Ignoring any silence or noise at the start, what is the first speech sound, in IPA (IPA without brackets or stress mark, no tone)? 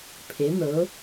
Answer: pʰ